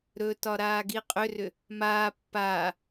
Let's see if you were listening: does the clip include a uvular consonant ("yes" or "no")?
yes